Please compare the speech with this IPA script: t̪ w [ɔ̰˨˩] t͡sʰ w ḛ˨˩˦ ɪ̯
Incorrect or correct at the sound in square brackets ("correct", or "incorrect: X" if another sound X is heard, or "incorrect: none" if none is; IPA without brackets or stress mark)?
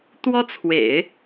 incorrect: ɔ˥